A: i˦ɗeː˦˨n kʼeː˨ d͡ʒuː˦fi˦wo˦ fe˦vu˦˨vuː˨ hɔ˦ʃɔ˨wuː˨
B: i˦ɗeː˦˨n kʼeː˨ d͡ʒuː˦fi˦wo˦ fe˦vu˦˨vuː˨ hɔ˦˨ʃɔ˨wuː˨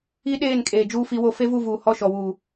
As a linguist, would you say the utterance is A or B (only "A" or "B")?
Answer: B